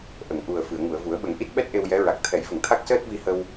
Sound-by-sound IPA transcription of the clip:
ʔ ə˨˩˨ ŋ ʔ u˨˩ ə̯ f ɨ˨˩˨ ə̯ ŋ u˨˩˨ ə̯ v u˨˩˦ ə̯ ɓ ə˨˩˦ ŋ ʔ i˦˥ t̚ ɓ ɛ˦˥ t̚ ʔ e˧ w j ɛ˧˥ ɹ a˨˩ k̚ t̪ʰ ɛ˨˩˦ j v ə˨˩˨ ŋ t̪ʰ a˦˥ k̚ s əː˦˥ t̚ v i˧ h ə˧ w

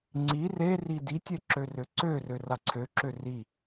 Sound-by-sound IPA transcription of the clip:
ŋ͡ǀ i r e r i d i tʲ e ǁ ø r ø ǀ ø r ø r a ǀʰ ø ǁ ø r i

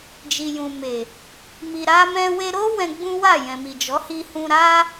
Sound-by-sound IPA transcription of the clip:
d͡ʒ i˨ j ũ˨ m e˨ | m i˨ ɾ a˧ m ɛ̃˧ w e˧ ɾ o˦ w ɛ̃˧ ɡ͡b ũ˦ w a˦˨ j ɛ̃˨ m i˨ d͡ʒ ɔ˨˦ h i˧ h ũ˧ ɾ a˦

